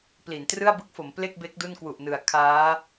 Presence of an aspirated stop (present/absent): present